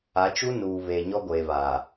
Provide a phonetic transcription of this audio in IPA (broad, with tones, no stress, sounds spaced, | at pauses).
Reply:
a˨˦ t͡ʃ u˦ n uː˨ β eː˨ ɲ ɔ˦ ɡʷ eː˨ β aː˨